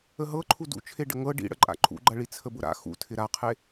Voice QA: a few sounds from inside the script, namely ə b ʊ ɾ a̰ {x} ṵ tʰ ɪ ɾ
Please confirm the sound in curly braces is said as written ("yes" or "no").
yes